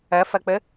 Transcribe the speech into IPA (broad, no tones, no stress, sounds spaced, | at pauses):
ɐ f ɐ k͡p ə